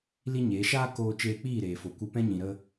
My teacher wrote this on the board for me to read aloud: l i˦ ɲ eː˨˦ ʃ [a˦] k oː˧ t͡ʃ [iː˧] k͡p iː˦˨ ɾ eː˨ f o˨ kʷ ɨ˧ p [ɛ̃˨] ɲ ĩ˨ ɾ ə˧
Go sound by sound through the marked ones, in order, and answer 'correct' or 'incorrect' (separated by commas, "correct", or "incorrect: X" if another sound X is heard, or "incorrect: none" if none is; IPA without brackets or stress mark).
incorrect: aː˦, incorrect: eː˧, incorrect: ɛ̃˦